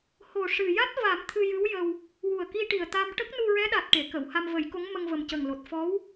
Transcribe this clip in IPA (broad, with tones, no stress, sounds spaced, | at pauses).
h o˨˩ ʂ ɨ˨˩ j a˦˥ t̚ v a˨˩˦ m t̪ʰ ɨ˧ j ɨ˧˥ w j ə˧ w | w u˨˩ ə̯ k i˧ ʈ i˨˩ ə̯ t̪ a˧ m ʈ ə˦˥ k̚ n u˧ ɹ ɛ˧˥ ɗ a˨˩ t̚ ʈ e˨˩˨ k ə˨˩˨ w h a˧ m v ə˨˩˦ j k o˧˥ ŋ m ə˧ ŋ v ə˨˩ m c ə˨˩ ŋ l o˨˩ t̚ f ɔ˧˥ w